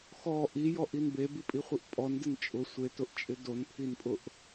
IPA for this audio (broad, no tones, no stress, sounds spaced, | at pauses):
x ɔ ʔ i j ɔ ʔ i n b e b i pʼ i χʷ i ʔ pʼ ɔ n d ɪ n t͡ʃʼ ʊ sʷ e t ʊ ʔ t͡ʃʼ ɪ d o n pʰ i n pʼ ʊ ʔ